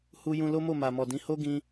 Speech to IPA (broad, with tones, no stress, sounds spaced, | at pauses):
h u˦ j ũ˦ l o˦ m o˦˨ m a˨ m ɔ˨ d ĩ˨˦ h o˦ ɡ ĩ˧